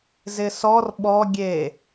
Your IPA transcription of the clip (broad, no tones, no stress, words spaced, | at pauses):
zɪsɔr ɓɔ ɡʲe